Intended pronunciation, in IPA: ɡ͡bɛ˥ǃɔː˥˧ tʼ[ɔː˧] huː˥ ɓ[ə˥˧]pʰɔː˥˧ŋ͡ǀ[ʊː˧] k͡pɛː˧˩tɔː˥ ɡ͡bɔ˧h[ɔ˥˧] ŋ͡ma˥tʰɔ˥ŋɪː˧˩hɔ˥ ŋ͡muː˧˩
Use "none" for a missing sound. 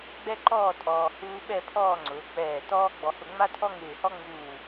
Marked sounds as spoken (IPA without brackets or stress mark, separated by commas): ɔː˧, ɛ˥˧, ʊː˩˧, ʊ˥˧